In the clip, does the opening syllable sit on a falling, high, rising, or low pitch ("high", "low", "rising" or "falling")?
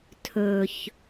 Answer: low